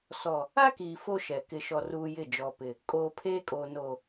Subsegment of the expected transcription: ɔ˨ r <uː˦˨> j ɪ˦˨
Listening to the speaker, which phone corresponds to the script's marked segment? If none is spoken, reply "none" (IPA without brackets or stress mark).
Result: uː˦